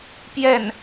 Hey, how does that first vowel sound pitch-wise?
falling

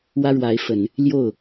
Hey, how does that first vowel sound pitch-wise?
high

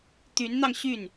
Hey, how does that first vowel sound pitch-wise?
rising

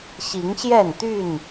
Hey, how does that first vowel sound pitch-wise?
rising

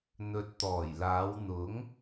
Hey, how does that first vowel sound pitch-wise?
low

